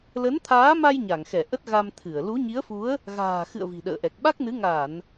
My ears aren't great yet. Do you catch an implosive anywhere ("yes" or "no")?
yes